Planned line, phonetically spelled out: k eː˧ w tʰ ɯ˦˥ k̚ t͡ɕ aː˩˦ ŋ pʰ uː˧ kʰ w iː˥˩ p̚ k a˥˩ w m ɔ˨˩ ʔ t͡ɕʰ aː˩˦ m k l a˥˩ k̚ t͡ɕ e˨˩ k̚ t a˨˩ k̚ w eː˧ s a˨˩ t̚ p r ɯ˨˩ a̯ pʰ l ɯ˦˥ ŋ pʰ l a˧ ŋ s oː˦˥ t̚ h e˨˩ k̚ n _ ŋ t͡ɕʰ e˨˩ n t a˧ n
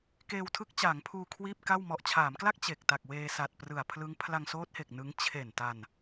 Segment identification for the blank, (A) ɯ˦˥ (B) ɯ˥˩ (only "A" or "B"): A